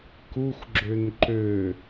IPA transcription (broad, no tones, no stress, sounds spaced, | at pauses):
k u xʷ ɡ͡ǁ ø n ǃ ø